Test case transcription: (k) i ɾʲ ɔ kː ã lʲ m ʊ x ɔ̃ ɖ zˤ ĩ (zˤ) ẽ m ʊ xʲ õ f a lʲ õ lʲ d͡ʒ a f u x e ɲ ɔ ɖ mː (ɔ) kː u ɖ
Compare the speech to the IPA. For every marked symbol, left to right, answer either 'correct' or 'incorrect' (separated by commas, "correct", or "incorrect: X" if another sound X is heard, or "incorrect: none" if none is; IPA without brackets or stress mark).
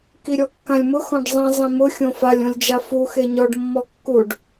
correct, correct, correct